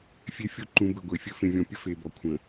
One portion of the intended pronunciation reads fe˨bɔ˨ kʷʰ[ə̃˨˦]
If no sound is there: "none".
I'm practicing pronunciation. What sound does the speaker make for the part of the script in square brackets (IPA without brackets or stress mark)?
ə̃˨